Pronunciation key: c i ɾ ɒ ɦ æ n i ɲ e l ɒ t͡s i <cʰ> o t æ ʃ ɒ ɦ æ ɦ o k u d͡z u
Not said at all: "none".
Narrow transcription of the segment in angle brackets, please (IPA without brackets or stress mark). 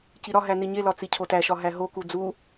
cʰ